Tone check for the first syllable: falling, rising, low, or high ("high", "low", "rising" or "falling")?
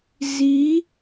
rising